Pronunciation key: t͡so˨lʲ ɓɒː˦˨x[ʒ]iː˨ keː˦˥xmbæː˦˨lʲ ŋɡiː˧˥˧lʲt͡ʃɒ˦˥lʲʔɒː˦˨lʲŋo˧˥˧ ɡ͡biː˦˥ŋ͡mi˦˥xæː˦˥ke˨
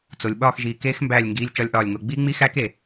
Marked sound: correct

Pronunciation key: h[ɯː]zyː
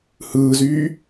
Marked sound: correct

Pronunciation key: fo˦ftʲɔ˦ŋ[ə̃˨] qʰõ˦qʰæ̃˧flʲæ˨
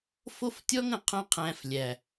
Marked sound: correct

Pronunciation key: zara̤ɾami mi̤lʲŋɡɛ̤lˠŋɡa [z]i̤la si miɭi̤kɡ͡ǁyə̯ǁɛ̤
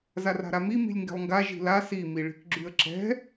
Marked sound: incorrect: ʒ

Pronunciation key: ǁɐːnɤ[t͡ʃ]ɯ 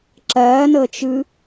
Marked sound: correct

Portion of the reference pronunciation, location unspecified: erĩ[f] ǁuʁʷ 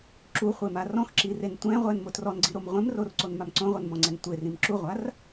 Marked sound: incorrect: m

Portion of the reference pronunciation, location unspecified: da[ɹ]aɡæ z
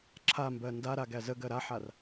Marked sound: incorrect: ɾ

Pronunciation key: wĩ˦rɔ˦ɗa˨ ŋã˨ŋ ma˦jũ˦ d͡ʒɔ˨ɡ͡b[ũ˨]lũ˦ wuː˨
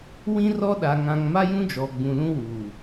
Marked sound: correct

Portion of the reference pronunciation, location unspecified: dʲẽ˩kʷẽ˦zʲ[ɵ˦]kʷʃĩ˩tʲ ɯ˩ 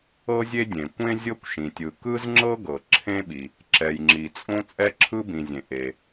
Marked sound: incorrect: ɤ˦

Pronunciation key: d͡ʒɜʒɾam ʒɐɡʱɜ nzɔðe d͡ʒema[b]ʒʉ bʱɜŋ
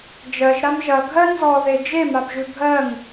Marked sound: correct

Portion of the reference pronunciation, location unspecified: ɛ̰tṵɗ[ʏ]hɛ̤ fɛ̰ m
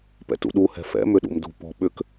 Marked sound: incorrect: u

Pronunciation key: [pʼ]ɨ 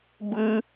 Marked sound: incorrect: b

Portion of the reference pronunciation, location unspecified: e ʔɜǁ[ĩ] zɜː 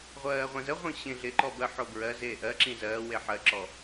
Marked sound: correct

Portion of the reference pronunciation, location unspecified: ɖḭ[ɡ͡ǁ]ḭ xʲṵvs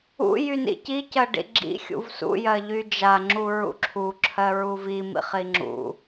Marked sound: correct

